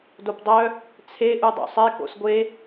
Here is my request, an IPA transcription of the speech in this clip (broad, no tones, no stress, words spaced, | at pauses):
dopdˤœ | t͡sʰe ʔudˤo̰sˤe ko̰sɡʷe